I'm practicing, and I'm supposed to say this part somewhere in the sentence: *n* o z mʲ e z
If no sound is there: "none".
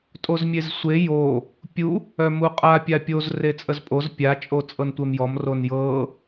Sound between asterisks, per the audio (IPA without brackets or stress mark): tʼ